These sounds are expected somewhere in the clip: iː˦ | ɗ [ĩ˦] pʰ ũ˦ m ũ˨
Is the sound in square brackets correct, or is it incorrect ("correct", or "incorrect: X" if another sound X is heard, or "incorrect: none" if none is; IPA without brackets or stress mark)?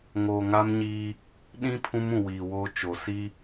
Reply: correct